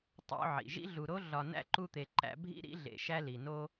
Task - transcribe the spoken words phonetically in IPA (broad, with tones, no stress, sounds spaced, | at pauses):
tˤ o̰˦ ʕ ḭ˩ ʒ ḭ˥ ɮ u˨ ɾ o˥ ɮ ɒ˨ n æ̰˥ ǃ u˦ t̪ e˨ ǃ æ̰˥ bʱ ḭ˥ ɾ ḭ˥ ɮ ḛ˨ ʃ æ˥ l i˩ n o˥